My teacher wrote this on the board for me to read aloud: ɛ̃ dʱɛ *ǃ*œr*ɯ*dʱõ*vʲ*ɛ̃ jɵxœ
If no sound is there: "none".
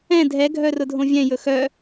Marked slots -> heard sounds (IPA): ɡʱ, ʊ, vʲ

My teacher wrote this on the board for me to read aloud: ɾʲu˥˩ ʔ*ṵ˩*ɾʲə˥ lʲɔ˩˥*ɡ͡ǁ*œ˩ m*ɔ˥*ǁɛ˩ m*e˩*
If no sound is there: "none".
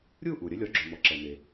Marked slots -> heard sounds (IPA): u˩, ɡ͡ǁ, ɔ˩, e˩

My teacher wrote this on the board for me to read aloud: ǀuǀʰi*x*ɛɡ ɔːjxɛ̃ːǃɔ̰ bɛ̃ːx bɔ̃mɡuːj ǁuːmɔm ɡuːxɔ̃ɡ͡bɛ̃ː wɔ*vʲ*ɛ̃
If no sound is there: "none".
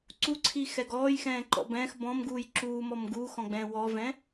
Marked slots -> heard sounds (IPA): x, v

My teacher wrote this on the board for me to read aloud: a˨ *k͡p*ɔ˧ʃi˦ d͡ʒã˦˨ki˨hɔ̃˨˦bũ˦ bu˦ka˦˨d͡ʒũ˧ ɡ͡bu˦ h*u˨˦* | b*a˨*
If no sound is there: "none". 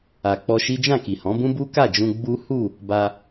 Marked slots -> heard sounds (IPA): k͡p, u˦˨, a˧

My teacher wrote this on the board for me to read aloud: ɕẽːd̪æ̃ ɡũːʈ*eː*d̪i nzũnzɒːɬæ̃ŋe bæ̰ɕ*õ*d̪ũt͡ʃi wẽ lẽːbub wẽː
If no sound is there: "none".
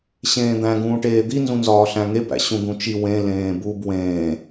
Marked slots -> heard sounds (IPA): eː, ũ

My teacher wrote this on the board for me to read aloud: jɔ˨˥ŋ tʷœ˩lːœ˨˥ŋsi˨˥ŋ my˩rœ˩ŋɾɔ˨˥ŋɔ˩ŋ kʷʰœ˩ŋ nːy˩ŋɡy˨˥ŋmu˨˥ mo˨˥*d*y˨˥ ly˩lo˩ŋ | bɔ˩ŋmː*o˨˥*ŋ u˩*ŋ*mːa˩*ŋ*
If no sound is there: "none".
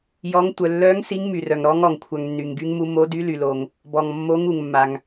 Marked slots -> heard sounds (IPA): d, o˨˥, ŋ, ŋ

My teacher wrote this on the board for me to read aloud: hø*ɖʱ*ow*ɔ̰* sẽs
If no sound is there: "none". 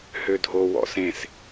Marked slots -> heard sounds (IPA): dʱ, ɔ̰

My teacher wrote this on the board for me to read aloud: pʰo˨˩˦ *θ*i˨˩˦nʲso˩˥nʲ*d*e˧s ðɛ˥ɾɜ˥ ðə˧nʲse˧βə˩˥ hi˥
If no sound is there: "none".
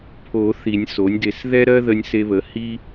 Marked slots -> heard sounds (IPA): θ, d

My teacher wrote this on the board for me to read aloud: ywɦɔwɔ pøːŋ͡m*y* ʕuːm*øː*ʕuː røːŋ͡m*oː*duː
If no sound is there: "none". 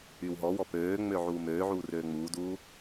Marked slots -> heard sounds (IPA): ø, øː, uː

